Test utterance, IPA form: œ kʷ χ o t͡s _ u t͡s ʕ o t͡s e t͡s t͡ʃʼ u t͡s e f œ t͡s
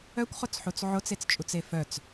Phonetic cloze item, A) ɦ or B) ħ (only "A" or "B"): B